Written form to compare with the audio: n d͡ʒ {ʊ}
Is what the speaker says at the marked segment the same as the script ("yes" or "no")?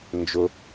yes